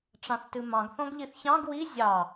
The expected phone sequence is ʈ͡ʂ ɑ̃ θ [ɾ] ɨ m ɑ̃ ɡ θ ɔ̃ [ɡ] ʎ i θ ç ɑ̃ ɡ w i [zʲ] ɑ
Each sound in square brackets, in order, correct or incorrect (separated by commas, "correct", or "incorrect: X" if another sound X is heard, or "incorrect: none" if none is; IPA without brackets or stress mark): incorrect: t, correct, correct